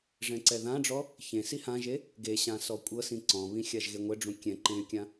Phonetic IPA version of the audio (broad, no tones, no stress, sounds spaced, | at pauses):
ʐ ɛ̃ ǀ ɛ ð ã ɖ͡ʐ ɔ | ç ẽ s i h ã ʒ e | ɡ e ɕ ã s ɔ kʷʼ ɤ s ĩ ǀ ɔ̃ β ĩ xʲ a ʒ ɣ e ŋʷ ɛ ɖ͡ʐ ũ kʲ ɛ̃ ǃ ẽ y̯ kʲ ã